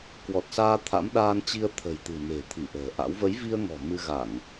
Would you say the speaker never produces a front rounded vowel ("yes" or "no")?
yes